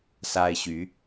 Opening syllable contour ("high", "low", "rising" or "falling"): high